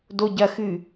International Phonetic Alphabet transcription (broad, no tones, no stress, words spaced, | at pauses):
doɟɐxɨ